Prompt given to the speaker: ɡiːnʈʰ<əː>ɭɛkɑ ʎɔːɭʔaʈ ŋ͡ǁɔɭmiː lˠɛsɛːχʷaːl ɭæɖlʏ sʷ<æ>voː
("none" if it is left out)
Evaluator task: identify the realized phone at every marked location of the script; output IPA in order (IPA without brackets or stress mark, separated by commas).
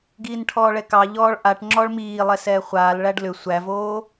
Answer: ɔː, æ